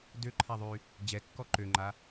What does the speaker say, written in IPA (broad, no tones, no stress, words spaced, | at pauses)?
døǃʰaðˤy | d͡ʑɛkːɔ ǃøŋ͡ǃa